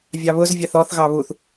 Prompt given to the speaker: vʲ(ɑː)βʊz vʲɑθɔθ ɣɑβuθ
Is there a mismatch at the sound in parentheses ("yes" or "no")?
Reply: yes